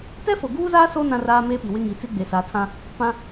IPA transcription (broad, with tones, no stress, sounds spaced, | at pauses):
t ɛ˦ f o˨ ɡ uː˦ z aː˦ s o˦ n ã˦ r aː˦ m eː˦ p i˨ w ɪ˦ ŋ i˨˦ t͡s i˦ ɡ͡b e˨ s a˨˦ tʰ ã˦ | p ã˦